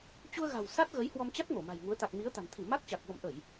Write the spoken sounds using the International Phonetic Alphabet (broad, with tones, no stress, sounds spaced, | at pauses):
t͡ɕ u˧ ə̯ ɣ a̤˨˩ w s a˦˥ t̚ ɣ ə˨˦ j h w ɔ˧ m t͡ɕ a˦˥ t̚ ŋ o˧˩ m a̤˨˩ j ŋ u˨˦ ə̯ t̪ a˨˩ k̚ m i˨˦ ə̯ t̪ a̤˨˩ n t̪ʰ i˧˩ m a˦˥ k̚ t͡ɕ a˨˩ k̚ v ə̰˧˨ m ʔ ə˧˩˨ j